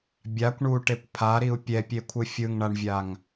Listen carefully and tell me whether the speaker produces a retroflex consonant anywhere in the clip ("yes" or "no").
yes